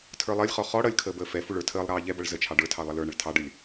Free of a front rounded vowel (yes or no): yes